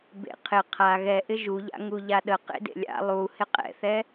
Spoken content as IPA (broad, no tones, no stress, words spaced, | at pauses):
bḛqʰɪ qʰa ɣɛʔɪ ʒuʎa̰ ŋuʎaɗə qḛdḛlʲa̰ lˠu hɪqʼɛ̰θɛ